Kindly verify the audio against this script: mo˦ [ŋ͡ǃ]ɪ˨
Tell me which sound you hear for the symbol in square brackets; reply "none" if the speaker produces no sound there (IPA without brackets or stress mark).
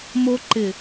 ǃ